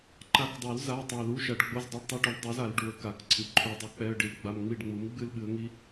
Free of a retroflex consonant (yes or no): no